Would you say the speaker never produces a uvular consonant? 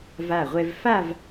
no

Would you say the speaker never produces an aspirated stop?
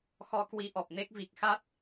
yes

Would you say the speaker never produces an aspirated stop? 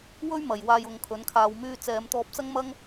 no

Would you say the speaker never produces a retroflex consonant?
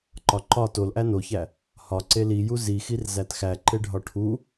no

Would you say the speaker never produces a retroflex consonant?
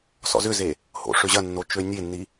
no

